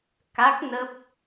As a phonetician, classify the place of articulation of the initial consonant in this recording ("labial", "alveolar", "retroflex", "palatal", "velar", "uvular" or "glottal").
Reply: velar